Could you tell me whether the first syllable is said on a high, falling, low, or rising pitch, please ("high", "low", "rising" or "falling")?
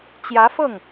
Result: rising